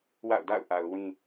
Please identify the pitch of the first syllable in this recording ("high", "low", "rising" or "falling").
falling